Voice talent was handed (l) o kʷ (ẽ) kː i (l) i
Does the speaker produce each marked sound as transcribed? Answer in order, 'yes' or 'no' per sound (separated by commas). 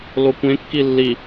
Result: yes, yes, no